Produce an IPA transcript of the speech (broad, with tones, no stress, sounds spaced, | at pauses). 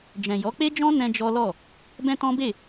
d͡ʒ ɛ̃˨ j ɔ˨˦ k͡p e˦ d͡ʒ ɔ̃˦ n ɛ̃˧ d͡ʒ ɔ˦ l ɔ˦˨ | b ɛ̃˦ t ɔ̃˦ b e˦˨